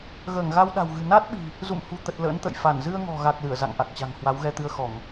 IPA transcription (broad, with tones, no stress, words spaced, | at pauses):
ɣəː˧˩ŋɣa˧wɗa̤˨˩wɣɨ̤˨˩ na˦˥t̚ɓi̤˨˩ | zṵ˧˨mhṳ˨˩t̪ə˨˩t̚ lə̰ː˧˥nt̪ə̰˧˨j fa˧˩n zɨ˧ə̯ŋɔ̤˨˩ɣa˨˩k̚ lɨ˧˩ə̯za̰˧˨ŋʔa˨˩k̚t͡ɕa̤˨˩ŋ hwa˨˦wɣɛ˧t̪ɨ˧ə̯xɔ˧˩˨ŋ